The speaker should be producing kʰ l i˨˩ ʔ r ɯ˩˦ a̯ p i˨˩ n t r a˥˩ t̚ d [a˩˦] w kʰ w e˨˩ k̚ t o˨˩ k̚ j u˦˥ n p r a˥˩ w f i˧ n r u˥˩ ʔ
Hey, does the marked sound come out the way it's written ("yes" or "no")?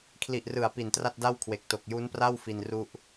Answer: no